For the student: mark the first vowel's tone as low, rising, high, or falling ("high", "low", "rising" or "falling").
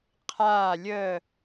falling